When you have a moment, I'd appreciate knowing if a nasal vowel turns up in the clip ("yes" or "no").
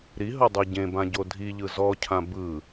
yes